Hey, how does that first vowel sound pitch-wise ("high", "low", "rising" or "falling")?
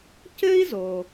high